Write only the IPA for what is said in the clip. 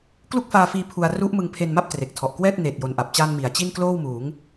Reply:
k l u˥˩ k̚ f aː˧ f iː˧ pʰ u˧ a̯ r u˦˥ ʔ m ɯ˧ ŋ pʰ e˧ n m a˥˩ p̚ t r e˨˩ k̚ tʰ ɔ˨˩ ʔ k w ɛː˥˩ t̚ n eː˨˩ t̚ j o˨˩ n ʔ a˨˩ p̚ t͡ɕ aː˧ n m i˨˩ a̯ t͡ɕ i˥˩ n k l oː˥˩ w m uː˩˦ ŋ

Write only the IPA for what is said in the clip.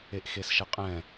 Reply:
e ʔ x e s ʃ ɘ qʼ ɛ̃

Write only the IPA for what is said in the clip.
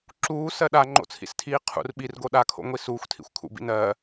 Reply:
ǁ uː s ɜ ɗ a ŋ͡ǃ o̰ t͡sʰ ḭ s tʰ iː qʰ ṵ r ɓ i r ɡ o ɗ a kʰ o̰ ŋʷ i s uː xʷ tʰ ḭ xʷ kʰ ṵ b ḭ n ɜ

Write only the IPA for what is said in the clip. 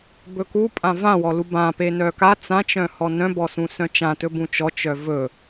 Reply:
b ɵ k u pʼ ã v ã w ɔ l u b ã p e n œ k a t͡s ã t͡ʃ œ̃ h ɔ n œ̃ b ɔ s ũ s œ̃ t͡ʃ ã t ɵ b ũ t͡ʃ ɔ t͡ʃ œ v ɵ

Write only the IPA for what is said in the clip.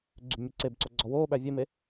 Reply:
ɡ͡ǀ y b mʲ u ǀ e b ǀ o ɡ͡ǀ ɔ w oː ɓ æ vʲ e m e

